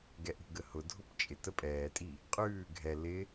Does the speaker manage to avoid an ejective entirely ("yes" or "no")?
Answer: no